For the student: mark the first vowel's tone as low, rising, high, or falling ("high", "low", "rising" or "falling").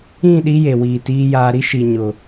falling